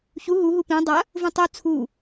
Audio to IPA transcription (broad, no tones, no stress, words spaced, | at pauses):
çu ɦu ɦupĩ dˤɐ | vũtˤu t͡sʰu